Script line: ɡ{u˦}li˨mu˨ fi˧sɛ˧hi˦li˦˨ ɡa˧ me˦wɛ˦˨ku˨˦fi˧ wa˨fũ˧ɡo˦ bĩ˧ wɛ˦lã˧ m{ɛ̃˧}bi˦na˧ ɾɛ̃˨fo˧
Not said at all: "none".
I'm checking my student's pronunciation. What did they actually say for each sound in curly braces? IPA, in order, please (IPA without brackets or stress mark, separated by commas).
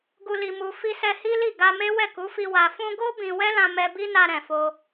u˨, ɛ˧